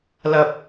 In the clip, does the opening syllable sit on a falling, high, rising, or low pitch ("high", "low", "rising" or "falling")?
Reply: low